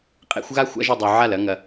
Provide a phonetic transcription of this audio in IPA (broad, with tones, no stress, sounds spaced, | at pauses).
qʼ ḛ˥˧ xʷ ɣ a˥˧ xʷ a̰˥˧ ʒ u˨ dˤ u˨ ʕ a˥˩ l ɐ˥˧ ŋ ɐ˨